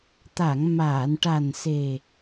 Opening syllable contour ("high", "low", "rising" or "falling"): low